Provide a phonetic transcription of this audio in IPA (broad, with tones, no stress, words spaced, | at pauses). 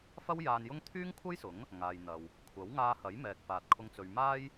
fɐ˥w jaː˧njʊ˥ŋ t̪ʰyː˥ŋkʷʰɐ˥jsʊ˨˥ŋ | ŋaː˨jn̪ɐ˨w | kʷʰɐ˨˥wŋaː˧hɐ˨˥jmɛː˨k̚ faː˨t̚kʰʊ˧ŋ t͡sɵ˨ɥmaː˥j